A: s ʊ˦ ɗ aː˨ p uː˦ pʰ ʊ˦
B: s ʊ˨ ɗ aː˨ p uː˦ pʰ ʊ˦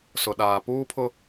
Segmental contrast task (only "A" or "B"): B